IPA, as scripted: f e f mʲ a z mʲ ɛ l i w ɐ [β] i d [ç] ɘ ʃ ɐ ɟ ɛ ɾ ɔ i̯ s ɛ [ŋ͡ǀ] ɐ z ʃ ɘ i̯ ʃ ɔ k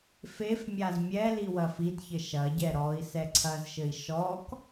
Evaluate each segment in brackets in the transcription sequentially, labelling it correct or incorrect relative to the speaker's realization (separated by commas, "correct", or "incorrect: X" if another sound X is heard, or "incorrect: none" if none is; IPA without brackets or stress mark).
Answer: incorrect: f, correct, incorrect: ǀʰ